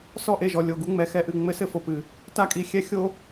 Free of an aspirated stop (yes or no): yes